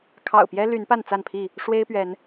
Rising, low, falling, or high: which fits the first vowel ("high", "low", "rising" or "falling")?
low